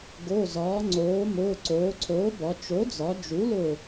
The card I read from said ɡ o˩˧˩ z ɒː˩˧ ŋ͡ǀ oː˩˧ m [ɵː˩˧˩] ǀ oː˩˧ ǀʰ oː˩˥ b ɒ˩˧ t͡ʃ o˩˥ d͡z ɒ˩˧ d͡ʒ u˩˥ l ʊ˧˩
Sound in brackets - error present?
yes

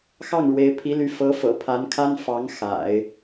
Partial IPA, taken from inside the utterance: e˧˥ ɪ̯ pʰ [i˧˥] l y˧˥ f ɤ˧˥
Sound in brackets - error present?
no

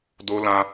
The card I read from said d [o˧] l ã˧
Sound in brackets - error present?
no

